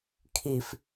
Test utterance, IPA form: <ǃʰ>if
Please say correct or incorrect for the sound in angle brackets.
incorrect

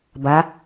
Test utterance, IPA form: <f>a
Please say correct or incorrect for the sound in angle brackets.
incorrect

